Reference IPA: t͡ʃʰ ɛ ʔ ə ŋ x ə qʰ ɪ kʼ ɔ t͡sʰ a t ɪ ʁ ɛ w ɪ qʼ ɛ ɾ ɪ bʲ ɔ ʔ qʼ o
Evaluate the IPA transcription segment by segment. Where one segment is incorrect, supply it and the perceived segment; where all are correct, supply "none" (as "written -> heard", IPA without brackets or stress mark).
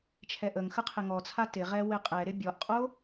kʼ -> ŋ